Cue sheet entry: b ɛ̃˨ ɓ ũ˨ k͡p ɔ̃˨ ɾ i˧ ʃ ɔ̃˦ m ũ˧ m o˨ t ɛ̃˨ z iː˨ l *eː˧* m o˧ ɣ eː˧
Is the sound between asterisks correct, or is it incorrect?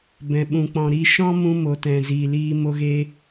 incorrect